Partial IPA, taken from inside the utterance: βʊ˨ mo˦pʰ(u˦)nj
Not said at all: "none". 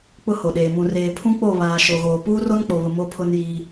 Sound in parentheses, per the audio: ʊ˦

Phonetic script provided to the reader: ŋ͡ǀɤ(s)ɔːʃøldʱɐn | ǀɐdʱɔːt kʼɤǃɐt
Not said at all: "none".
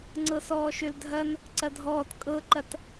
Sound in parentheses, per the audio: s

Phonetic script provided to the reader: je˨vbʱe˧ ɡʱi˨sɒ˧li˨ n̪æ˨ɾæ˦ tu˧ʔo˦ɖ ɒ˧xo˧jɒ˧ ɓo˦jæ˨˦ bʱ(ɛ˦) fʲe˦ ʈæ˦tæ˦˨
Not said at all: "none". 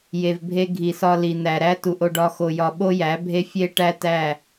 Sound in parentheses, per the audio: e˦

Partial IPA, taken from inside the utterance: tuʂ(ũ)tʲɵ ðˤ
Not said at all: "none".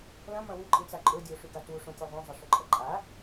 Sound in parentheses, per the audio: õ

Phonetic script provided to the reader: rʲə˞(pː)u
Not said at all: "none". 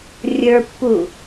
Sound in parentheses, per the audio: pː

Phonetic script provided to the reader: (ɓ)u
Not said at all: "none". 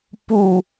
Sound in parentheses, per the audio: p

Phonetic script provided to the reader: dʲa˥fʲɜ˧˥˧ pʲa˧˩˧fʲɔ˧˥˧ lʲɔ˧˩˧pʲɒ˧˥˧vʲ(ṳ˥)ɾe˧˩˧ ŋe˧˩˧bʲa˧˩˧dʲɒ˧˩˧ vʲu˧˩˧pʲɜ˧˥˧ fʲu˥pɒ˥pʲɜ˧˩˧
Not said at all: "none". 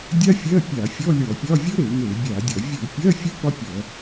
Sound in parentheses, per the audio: u˥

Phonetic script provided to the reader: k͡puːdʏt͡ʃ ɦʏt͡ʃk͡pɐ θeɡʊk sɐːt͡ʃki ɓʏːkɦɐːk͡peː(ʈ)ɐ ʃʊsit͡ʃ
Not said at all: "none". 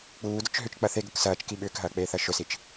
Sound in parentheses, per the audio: θ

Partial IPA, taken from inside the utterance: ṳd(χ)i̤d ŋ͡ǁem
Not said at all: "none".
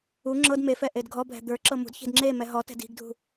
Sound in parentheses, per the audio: ç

